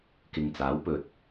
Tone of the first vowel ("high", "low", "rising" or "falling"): low